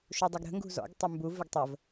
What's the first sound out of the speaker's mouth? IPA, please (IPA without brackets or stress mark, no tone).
ʃ